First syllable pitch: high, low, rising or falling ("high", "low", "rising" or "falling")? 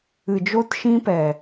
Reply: low